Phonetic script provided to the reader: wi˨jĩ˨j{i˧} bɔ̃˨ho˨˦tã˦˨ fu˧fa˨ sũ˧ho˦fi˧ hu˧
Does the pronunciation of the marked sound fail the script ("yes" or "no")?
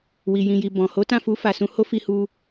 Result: yes